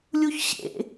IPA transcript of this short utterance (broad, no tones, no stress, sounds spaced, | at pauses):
lʲ u ç ɕ ḛ